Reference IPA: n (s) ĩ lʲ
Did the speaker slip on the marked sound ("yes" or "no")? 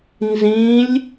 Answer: yes